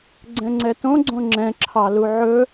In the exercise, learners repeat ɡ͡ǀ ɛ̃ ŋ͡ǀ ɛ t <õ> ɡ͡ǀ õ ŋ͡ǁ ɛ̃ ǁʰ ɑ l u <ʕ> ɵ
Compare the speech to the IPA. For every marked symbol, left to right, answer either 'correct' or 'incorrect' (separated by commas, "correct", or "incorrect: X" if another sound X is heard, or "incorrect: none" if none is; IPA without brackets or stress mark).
correct, correct